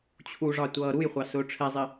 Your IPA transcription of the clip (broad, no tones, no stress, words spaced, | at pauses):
t͡ɕʰuʐɑ tʷʌːɾujχʷɑ sʊːʈ͡ʂʰɛzˤɪ